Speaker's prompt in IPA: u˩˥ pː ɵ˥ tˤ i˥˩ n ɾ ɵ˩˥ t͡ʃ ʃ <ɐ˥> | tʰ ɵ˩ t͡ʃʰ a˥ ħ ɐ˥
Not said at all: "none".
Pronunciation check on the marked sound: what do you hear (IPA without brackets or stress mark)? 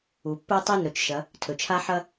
ɐ˩˥